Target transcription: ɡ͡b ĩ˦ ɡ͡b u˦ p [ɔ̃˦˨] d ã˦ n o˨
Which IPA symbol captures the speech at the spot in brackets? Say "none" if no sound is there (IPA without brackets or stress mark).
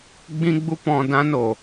ɔ̃˦˨